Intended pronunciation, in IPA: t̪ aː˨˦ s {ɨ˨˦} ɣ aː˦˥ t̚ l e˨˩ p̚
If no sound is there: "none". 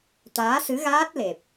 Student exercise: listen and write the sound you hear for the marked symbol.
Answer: ɨ˨˦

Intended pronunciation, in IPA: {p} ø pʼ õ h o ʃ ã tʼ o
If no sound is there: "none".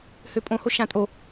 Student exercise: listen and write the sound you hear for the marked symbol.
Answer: h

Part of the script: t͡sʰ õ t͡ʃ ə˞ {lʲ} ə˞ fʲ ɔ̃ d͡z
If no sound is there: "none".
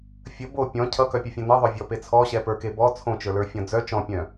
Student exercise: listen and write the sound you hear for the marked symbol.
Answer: l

